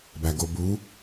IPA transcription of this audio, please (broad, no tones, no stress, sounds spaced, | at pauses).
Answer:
b æ ɡ o b u